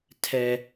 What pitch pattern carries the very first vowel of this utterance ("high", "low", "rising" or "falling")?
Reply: low